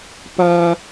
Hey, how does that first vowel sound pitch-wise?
low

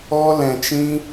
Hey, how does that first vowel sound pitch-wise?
high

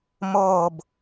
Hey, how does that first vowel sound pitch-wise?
falling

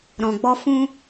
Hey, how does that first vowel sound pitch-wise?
low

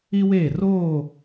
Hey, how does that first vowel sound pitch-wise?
high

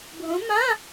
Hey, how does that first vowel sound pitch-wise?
rising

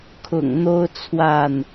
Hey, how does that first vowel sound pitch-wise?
low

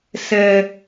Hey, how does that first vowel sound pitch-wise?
low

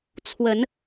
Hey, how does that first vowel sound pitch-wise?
rising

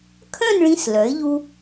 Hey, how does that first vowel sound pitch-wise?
falling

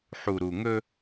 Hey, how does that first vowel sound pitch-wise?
low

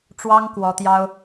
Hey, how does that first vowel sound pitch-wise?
high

